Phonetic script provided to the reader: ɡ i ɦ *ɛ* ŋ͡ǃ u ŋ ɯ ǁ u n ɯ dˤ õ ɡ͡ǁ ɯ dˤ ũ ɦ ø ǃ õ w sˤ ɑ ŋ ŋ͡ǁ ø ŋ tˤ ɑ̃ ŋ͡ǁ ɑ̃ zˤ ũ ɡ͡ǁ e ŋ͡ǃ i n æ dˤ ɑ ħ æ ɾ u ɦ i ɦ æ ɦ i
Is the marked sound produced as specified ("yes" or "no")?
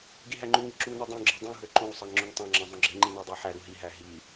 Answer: no